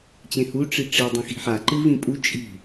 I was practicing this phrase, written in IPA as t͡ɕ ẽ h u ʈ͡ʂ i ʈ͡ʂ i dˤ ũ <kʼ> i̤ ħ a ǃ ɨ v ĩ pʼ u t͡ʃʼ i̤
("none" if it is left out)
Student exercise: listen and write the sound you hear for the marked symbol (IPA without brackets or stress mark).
x